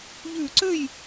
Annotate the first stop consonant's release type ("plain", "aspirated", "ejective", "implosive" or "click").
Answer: click